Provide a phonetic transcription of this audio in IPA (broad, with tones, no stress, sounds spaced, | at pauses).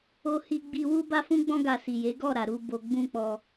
o˧ h i˧ ɡ͡b i˧ w u˦ b a˦ f ũ˦ ɡ͡b ɔ̃˦ ɡ a˧ s i˨ j e˨˦ ɡ ɔ˦˨ ɾ a˨ ɾ u˧ b o˧ ɡ͡b ũ˦ k͡p ɔ˧